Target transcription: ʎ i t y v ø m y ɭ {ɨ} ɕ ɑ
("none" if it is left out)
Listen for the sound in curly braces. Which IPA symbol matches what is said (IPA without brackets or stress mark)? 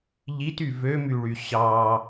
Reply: y